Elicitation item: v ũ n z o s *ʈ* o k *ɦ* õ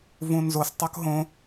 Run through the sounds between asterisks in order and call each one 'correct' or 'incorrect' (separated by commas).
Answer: incorrect, correct